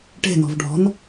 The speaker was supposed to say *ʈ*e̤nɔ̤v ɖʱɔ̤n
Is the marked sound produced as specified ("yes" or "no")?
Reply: yes